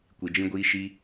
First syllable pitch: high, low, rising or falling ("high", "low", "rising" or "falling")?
low